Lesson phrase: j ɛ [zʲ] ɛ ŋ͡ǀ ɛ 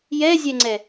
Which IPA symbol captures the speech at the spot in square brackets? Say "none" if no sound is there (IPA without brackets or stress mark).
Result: zʲ